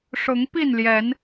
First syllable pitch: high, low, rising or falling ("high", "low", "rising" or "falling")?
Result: rising